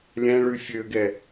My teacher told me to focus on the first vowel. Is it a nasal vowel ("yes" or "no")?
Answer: yes